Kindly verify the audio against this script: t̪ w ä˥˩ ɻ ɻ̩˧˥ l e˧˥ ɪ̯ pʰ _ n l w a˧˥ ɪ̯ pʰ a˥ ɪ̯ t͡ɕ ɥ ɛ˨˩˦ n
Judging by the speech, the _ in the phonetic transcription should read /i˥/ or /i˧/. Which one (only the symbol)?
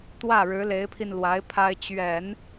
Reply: i˧